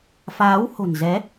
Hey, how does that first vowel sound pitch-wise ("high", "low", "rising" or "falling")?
rising